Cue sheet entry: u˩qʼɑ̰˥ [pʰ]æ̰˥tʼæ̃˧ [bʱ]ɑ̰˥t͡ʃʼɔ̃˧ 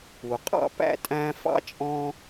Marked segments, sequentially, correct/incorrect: incorrect, incorrect

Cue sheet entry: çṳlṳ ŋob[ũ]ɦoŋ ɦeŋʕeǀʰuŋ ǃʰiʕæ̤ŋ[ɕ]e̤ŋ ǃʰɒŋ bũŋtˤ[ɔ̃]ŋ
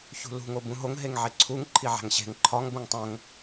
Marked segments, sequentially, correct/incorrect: correct, correct, incorrect

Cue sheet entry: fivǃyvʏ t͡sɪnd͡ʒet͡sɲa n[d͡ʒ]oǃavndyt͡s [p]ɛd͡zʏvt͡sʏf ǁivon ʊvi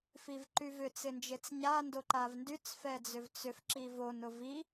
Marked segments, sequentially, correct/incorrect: incorrect, incorrect

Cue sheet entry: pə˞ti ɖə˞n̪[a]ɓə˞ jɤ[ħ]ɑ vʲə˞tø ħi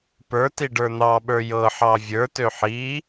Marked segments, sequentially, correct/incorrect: incorrect, correct

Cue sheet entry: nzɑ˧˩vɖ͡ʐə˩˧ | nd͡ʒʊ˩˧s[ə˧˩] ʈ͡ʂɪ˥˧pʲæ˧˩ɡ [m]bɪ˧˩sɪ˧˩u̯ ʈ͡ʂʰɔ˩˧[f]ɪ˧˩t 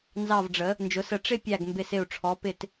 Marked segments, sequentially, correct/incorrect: correct, correct, incorrect

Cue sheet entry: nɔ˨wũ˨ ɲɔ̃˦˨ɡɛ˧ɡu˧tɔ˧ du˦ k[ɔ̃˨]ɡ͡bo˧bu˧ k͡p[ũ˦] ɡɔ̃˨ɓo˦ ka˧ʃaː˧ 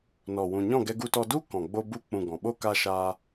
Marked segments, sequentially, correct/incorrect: correct, incorrect

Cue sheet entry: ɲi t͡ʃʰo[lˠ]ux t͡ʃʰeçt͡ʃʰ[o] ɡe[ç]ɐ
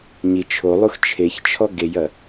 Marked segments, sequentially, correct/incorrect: correct, incorrect, incorrect

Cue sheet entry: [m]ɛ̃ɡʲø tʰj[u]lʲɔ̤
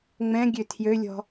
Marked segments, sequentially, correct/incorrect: incorrect, incorrect

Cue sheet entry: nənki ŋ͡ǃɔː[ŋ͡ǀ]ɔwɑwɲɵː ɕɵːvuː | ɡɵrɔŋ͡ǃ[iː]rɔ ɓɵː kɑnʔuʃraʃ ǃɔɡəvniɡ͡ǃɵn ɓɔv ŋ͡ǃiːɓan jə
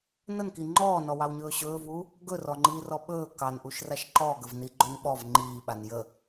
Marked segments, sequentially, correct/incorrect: incorrect, correct

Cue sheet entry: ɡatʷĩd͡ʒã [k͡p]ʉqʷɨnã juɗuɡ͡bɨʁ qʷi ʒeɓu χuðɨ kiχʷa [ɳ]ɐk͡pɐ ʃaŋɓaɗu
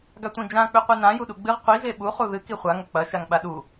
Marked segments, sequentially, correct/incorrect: correct, incorrect

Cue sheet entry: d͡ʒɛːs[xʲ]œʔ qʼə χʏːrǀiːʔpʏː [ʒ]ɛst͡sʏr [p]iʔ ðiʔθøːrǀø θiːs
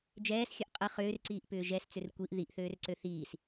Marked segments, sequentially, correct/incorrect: correct, correct, incorrect

